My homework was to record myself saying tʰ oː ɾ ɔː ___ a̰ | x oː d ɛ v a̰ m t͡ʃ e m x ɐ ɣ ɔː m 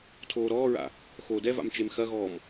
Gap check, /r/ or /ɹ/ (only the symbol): ɹ